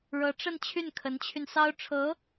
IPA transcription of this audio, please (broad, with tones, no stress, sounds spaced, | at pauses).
ɻ ɤ˧˥ ʈ͡ʂ ə˥˧ n t͡ɕʰ y˥˩ n kʰ ə˧˥ n t͡ɕʰ y˧ n s ɑ˥ ʊ̯ ʈ͡ʂʰ ɤ˧˥